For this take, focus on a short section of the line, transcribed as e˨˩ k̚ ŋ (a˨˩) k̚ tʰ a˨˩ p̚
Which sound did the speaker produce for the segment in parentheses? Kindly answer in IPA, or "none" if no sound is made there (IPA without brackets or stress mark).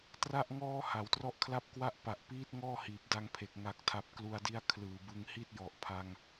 a˨˩